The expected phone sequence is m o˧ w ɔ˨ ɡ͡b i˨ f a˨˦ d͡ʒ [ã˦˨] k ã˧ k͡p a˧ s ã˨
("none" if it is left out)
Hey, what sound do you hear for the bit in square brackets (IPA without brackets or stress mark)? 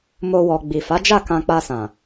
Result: a˦˨